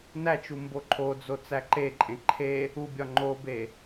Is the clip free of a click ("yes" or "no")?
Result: no